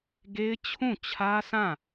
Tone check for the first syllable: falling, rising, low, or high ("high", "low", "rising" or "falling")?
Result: high